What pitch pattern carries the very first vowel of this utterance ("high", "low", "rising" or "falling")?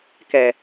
low